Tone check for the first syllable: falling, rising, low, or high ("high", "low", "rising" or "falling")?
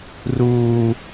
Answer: low